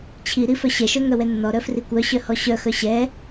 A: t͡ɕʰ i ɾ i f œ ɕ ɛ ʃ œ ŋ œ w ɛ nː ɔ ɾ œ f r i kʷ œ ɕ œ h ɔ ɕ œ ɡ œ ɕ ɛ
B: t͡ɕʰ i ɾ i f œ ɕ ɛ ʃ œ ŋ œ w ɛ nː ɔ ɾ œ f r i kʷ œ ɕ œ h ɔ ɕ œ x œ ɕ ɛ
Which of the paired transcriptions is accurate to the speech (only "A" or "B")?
B